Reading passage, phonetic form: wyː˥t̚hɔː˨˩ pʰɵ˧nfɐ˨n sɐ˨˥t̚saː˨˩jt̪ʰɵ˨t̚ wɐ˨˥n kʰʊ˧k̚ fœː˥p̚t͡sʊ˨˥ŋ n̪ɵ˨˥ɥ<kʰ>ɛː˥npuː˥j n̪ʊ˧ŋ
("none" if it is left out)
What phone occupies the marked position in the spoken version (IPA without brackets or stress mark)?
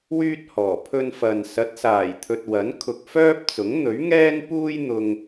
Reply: ŋ